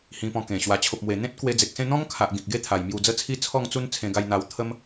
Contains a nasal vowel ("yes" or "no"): yes